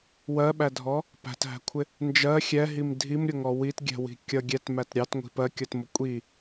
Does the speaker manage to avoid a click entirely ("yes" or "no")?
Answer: yes